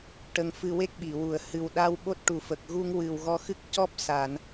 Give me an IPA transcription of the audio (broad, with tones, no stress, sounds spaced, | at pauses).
ʈ ə˧ ŋ f ɨ˧ w e˦˥ k̚ ɓ i˨˩˨ w u˨˩˨ ə̯ h ɨ˨˩ w ɗ a˧ w ɓ o˦˥ t̚ ʈ u˨˩ f ə˨˩ k̚ ɣ u˧ ŋ w ɨ˨˩ w ɣ ɔ˧ x ɨ˦˥ k̚ c ɔ˦˥ p̚ s a˨˩˨ n